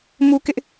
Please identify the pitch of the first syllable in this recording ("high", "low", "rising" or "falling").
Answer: high